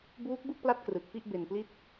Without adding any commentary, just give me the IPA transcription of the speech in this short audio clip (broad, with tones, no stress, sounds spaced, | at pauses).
b uː˦˥ k̚ b ɯ˥˩ k̚ p l a˦˥ t̚ k r ɯ˨˩ k̚ p i˥˩ ʔ b e˧ n p l i˥˩ t̚